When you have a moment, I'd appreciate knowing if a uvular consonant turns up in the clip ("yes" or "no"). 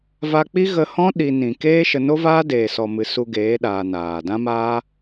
no